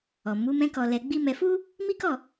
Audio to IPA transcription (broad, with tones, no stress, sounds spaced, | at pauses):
ɔ˨ m u˨˦ m ɛ̃˦ k ɔ˧ l ɛ˧ ɡ͡b i˦ m ɛ˧ f u˦ | m i˦ k ɔ˦˨